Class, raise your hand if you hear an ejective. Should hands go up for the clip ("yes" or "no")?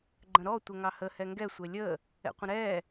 no